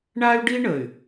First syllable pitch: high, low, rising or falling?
high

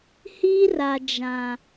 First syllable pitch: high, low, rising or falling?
high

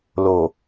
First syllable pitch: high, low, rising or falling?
low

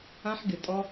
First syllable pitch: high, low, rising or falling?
high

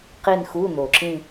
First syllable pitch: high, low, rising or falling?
falling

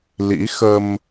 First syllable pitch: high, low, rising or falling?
rising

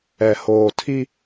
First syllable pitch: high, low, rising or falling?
low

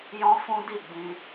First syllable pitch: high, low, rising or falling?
high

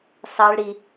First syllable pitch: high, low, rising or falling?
high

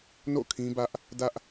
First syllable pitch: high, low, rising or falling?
falling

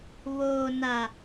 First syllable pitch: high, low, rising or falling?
low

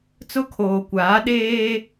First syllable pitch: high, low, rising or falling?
high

